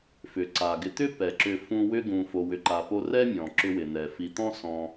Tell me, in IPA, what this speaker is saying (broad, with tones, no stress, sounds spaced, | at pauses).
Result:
f ʏ˩ ǀ a˩ ɡ ɪ˨ t̪ ʏ˥ p ɛ˩ ǁ ʏ˨ f ũ˦ w ʏ˦ ɡ ũ˨ f o˨ w ʏ˨ ǃ a˨ p o˦ r ɛ˥ mʲ ɔ̃˩ ǁ ʏ˥ w ɪ˨ n̪ ɛ˩ f i˨ t̪ ɔ̃˥ s ɔ̃˨